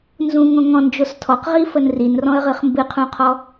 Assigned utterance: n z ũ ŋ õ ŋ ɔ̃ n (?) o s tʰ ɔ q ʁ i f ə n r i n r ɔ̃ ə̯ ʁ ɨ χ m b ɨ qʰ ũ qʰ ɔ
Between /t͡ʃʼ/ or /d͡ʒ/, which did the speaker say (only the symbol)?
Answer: d͡ʒ